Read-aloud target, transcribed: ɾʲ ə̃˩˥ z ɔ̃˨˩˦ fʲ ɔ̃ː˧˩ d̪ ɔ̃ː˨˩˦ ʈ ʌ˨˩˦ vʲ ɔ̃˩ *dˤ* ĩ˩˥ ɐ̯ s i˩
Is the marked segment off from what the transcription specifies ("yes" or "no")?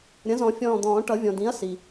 yes